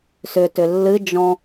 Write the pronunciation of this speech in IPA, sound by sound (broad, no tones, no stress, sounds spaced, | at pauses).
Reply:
s ʏ t ʏ lː ɨ d͡ʒ ɔ̃